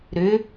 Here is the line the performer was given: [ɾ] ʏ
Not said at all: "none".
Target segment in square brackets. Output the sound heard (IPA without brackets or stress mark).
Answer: ɾ